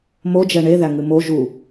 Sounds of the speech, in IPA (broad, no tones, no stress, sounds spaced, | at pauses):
m o d͡ʒ ɛ ɳ e ð æ ŋ ɨ m o ʒ u